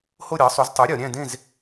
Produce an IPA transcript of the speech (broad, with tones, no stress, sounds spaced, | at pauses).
h o˥˧ ɾʲ ɑ˨˥ sˤ u˨˥ z tˤ o˨˥ ɾʲ ɒ˩˧ ɾʲ æ̃˥˧ d ẽ˥˧ z